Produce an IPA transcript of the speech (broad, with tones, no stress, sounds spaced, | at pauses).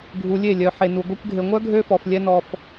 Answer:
ɡʱ u˨ lʲ e˦˨ lʲ œ˨ ħ e˨ n u˨ ɡʷ ɛ˧ kʷ ɡʱ e˨ ŋʷ œ˦ ɡʱ ø˦ f ɔ˨ f lʲ ɛ˦ n ɔ˧ f